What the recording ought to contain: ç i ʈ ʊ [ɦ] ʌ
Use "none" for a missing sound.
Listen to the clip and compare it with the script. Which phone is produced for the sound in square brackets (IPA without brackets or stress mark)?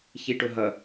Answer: ɦ